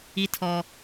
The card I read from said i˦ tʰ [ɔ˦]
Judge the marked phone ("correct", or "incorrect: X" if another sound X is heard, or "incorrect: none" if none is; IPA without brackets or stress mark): correct